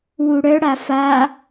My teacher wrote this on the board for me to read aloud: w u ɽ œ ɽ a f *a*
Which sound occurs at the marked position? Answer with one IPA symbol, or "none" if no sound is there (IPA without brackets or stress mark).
a